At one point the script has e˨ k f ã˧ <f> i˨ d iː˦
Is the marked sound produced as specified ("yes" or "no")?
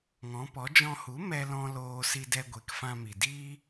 no